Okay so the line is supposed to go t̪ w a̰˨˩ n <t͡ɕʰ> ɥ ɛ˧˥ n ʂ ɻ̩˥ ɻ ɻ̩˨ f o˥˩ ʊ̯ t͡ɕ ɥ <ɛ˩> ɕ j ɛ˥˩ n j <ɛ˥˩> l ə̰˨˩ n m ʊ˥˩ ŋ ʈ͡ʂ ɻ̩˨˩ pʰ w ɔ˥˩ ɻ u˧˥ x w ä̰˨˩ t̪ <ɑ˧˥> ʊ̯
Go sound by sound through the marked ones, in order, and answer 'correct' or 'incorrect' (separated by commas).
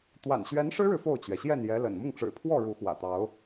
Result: incorrect, correct, incorrect, correct